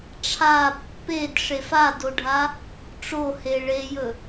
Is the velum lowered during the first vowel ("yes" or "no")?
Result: no